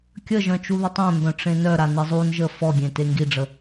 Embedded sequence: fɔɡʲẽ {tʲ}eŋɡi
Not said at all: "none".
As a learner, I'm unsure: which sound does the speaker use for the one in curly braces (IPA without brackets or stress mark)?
t